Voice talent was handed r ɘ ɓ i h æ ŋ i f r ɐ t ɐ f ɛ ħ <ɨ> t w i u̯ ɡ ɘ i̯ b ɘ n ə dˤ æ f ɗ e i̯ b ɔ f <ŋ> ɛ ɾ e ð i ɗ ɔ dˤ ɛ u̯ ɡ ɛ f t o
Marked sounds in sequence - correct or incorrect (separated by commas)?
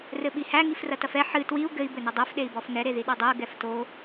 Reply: correct, correct